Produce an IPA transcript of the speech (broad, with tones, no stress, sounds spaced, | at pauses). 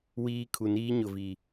w iː˦ kʰ u˨ n iː˦ ɲ ʊ˨ v i˨